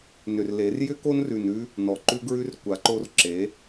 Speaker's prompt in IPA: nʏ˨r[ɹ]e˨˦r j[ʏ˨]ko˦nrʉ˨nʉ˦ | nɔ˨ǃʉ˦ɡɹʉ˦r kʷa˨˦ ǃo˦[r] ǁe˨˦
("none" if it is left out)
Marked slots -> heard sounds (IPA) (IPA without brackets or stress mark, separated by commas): l, ʏ˦, r